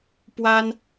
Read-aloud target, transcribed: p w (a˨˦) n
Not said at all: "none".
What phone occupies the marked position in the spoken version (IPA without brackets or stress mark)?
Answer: a˦